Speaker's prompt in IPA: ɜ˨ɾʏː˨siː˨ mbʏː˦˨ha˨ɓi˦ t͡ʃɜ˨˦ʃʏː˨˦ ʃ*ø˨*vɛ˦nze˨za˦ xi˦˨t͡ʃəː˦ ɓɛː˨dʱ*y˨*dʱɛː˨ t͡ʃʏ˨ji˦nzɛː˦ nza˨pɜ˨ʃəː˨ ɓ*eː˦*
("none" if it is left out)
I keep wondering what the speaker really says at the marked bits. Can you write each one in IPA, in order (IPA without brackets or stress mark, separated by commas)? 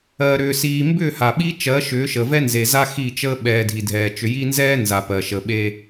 ə˨, i˨, eː˦